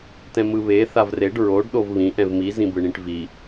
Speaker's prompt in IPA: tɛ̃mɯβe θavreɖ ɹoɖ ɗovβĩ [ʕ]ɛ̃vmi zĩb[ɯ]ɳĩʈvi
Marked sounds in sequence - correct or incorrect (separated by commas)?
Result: incorrect, correct